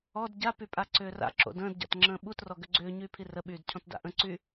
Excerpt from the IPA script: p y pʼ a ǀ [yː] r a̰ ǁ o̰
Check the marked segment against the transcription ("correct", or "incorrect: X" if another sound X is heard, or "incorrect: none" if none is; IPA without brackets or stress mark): incorrect: ʏː